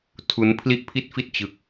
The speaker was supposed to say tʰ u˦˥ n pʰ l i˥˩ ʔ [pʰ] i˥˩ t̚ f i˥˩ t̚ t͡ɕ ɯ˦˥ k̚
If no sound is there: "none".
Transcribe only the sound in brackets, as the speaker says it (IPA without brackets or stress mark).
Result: pʰ